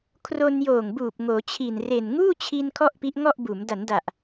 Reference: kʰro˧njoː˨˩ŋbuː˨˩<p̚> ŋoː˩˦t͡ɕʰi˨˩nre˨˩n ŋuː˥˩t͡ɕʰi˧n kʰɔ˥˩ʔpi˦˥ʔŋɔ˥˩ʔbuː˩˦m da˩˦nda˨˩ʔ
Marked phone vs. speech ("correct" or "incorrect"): correct